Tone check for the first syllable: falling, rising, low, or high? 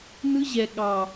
high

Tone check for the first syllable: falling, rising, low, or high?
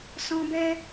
high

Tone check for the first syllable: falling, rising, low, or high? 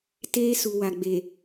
high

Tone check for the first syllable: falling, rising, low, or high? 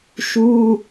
high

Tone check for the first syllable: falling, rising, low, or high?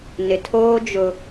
low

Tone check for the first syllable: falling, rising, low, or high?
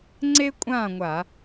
high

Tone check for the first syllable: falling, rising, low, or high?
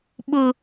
high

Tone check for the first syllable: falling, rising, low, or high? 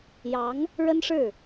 rising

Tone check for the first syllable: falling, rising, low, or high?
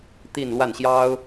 falling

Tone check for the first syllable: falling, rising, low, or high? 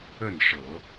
falling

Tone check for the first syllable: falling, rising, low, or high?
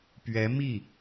rising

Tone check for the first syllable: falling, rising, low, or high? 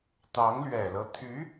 rising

